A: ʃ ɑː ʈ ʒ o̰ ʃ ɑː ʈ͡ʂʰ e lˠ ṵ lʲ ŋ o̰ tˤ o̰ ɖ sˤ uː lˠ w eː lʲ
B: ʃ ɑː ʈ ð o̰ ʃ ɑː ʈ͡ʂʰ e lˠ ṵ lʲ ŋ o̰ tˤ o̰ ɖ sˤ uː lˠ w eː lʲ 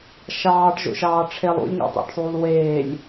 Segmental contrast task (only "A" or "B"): A